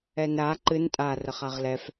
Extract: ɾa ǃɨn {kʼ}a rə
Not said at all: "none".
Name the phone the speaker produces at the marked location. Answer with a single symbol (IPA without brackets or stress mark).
tʼ